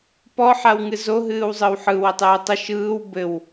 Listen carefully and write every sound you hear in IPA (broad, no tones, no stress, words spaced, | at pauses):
pɔħaw ŋɨzo ɦɨːwzˤɯwħɯ wɘtˤɨːtˤə ʃɯːw bɘw